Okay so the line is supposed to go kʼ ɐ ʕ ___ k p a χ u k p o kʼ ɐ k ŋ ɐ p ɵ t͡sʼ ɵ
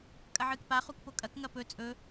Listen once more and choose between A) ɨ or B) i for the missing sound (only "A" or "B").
A